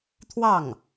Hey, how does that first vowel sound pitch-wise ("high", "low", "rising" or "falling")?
falling